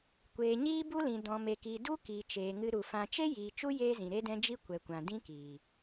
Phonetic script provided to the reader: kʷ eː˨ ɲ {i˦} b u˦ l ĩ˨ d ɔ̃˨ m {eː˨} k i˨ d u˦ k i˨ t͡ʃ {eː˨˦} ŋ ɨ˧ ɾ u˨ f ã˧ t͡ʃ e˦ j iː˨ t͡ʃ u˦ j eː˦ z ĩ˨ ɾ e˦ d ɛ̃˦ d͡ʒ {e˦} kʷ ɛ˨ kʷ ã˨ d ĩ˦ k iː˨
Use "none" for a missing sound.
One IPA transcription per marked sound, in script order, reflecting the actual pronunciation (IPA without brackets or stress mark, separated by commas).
iː˦, e˨, eː˨, i˦